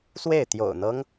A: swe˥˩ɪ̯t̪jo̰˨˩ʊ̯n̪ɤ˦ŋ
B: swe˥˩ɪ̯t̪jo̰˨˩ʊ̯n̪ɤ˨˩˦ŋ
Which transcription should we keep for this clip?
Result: A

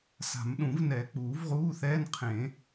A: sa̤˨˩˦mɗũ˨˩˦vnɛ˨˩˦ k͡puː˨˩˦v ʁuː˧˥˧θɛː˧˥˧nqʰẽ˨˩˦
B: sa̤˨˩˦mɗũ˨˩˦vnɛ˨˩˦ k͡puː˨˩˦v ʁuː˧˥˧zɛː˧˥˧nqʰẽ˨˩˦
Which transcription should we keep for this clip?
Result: A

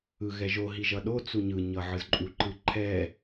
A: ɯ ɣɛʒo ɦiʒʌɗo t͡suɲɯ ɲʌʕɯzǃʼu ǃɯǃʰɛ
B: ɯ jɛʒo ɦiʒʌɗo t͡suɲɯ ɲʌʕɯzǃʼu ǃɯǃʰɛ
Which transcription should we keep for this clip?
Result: A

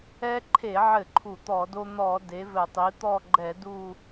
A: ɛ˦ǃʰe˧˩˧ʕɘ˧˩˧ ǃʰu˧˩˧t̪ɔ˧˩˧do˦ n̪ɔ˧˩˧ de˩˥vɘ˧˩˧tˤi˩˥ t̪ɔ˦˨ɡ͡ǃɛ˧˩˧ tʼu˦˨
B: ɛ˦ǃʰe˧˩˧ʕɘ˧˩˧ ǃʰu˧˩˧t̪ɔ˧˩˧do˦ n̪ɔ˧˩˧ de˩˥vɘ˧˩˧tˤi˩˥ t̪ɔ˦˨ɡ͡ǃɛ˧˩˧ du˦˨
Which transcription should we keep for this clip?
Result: B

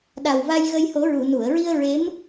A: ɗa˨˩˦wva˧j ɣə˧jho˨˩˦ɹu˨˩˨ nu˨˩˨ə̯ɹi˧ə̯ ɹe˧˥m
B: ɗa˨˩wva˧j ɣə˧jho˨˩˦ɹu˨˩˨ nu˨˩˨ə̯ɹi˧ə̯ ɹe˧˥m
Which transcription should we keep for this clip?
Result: B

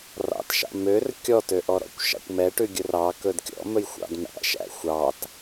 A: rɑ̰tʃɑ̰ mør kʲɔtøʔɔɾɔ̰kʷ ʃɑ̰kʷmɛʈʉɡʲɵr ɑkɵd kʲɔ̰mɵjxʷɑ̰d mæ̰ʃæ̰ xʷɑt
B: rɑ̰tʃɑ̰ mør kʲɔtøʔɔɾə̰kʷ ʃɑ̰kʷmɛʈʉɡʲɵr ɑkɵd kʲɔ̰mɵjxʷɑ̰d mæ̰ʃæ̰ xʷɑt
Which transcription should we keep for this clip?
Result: A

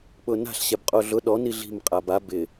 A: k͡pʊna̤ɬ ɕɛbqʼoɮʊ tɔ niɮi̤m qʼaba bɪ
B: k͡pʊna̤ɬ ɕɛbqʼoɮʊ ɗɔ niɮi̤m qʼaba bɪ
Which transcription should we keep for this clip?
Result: B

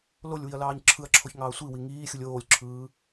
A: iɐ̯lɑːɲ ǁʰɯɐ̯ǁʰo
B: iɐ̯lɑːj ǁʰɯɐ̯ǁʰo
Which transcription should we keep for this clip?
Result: A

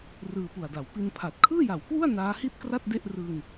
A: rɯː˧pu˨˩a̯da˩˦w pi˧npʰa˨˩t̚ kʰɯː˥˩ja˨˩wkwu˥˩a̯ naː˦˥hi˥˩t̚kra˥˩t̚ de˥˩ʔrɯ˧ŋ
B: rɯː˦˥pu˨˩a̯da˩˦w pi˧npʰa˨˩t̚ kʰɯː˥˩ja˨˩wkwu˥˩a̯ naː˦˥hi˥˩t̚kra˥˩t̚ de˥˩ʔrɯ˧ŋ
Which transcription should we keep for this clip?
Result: A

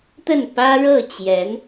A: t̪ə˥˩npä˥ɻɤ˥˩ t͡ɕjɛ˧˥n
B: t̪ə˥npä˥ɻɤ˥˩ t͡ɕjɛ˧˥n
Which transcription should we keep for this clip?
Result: A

